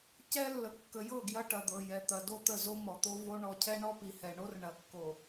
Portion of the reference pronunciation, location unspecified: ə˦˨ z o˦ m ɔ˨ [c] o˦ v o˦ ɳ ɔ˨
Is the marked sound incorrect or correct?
incorrect